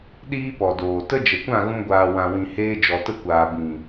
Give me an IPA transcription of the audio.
ɗ iː˦ p ɔ˨ d oː˨ t ə˦ d͡ʒ ə˨ kʷ ã˦˨ ɣ ũ˧ ɡʷ aː˨ w ã˨ w ĩ˨ h eː˧ d͡ʒ ɔ˨ t ə˧ kʷ aː˨ b ĩ˨

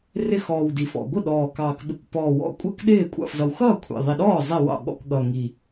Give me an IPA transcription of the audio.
r ɪ˥˩ x ɔː˨˩ w d i˨˩ f ɔ̰˨˩ ɡʷ ɪ˥˩ ɗ ɔː˨˩ k ɑː˨˩ k ɓ ɪ˨˩ kʷ p ɔː˨˩ w ɔ̰˥˩ kʷʼ ɛ˥˩ k ɗ ɪː˥˩ kʷʼ ɑ̰˥˩ f z ʌ˨˩ w x ʌː˥˩ kʷʰ ḭ˨˩ ðˤ i˨˩ ɗ ɔː˥˩ zˤ i˥˩ w ɑ̰˥˩ ɠ ɔ̰˥˩ k ɠ ʌ˨˩ ŋ i˨˩

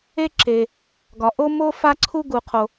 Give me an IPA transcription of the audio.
e˥ ǁ e˩ | ɡ ɒ˩ ʔ o˥ m o˥ f a˥ ǀʰ u˥ ɡ u˩ qʰ o˩

